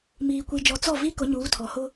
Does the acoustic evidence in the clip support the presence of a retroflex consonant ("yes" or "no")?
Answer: no